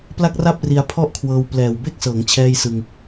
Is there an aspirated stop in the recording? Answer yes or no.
yes